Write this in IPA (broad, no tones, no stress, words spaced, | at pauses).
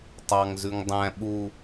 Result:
tˤɑŋzʉŋ dˤæ̃ ɓu